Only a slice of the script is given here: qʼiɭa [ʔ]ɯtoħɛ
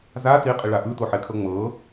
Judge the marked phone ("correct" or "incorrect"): correct